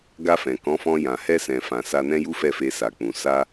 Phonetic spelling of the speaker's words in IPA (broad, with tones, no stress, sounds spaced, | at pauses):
ɡ a˧ f ɛ̃˨ k ɔ̃˨˦ f ɔ̃˧ j ã˨ h ɛ˧ s ɛ̃˨ f ã˨ s a˧ n ɛ̃˦ j u˦ f ɛ˦˨ f e˧ s a˨ k͡p ũ˨ s a˧